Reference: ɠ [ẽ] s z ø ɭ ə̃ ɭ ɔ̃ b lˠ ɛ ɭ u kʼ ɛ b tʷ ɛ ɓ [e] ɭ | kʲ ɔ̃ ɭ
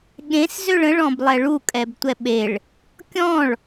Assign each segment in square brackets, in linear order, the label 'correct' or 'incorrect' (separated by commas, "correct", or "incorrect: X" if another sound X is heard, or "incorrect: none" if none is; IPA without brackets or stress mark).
correct, correct